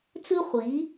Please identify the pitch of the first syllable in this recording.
high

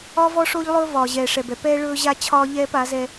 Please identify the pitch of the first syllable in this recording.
high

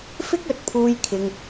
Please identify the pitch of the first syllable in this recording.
high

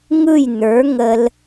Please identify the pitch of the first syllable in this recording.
falling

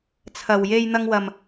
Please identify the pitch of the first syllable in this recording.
low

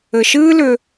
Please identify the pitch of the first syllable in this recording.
low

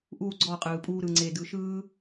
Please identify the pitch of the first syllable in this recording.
falling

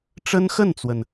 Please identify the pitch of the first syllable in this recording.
high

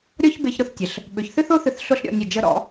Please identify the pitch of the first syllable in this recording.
high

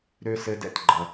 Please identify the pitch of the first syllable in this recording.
high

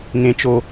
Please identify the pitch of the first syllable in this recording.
low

